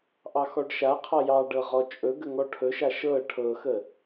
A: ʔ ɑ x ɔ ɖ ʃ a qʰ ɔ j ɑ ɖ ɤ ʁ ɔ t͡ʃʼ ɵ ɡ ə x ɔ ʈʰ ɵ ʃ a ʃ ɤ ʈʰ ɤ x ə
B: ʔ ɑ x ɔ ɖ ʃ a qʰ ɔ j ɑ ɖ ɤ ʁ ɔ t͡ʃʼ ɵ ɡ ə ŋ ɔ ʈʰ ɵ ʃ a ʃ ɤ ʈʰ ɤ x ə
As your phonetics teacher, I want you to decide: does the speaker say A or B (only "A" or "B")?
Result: B